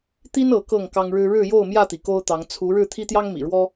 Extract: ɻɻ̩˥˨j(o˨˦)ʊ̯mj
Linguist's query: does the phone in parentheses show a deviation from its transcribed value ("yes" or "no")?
yes